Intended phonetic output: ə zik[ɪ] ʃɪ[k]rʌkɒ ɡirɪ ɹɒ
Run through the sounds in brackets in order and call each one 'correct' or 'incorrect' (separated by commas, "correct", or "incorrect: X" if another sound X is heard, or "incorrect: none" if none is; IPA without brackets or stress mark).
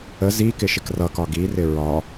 correct, correct